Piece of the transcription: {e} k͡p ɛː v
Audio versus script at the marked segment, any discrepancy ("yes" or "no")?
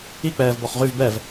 yes